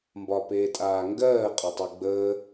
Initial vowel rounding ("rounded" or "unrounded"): rounded